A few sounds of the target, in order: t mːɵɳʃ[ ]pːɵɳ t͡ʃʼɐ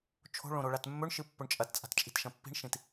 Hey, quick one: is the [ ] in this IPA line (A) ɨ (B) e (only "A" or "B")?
A